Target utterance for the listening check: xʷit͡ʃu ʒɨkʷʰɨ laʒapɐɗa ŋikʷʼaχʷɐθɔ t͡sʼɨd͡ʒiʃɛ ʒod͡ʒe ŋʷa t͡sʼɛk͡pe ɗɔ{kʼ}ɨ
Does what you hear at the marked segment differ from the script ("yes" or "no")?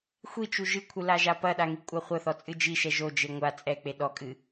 no